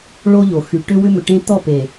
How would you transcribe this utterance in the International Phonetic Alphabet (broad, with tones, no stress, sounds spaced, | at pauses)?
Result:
ɭ o˦ ʎ o˨ x y˨ ʈ ʏ˦ w ʏ˦ m ʏ˨ ʈ ẽ˦ t̪ ɔ˦˨ p e˨